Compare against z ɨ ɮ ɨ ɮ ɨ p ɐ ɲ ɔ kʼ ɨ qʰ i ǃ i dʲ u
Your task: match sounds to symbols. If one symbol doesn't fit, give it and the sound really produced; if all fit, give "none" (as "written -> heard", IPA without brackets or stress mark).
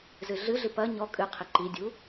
none